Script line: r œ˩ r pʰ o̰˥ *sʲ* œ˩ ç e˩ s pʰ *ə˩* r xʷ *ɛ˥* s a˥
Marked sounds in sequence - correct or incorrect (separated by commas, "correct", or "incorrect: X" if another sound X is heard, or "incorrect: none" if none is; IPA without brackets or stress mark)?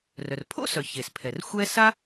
incorrect: s, incorrect: ɛ˩, correct